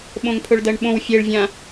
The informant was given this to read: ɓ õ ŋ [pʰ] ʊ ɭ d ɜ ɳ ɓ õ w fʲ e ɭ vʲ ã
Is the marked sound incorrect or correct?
correct